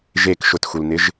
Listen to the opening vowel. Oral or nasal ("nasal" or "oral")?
oral